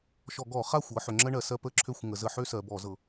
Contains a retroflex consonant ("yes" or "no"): yes